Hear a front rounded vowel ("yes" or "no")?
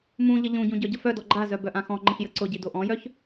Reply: yes